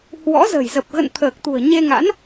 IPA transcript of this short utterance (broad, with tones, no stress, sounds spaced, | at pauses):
h w ɔ̰˧˥ z ə̤˨˩ j z ə˨˩ p̚ ɣ ə̰˧˨ n t̪ʰ əː˨˩ k̚ t̪ ṳ˨˩ ə̯ ɲ e˧ ŋ a̰˧˥ n